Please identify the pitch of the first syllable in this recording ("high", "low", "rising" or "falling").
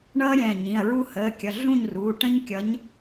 high